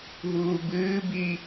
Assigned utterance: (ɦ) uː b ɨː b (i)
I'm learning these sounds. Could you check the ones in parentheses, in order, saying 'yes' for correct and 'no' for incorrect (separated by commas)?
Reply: yes, yes